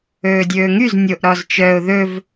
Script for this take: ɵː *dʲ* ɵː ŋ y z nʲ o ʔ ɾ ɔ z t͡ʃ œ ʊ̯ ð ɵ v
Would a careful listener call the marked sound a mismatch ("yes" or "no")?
no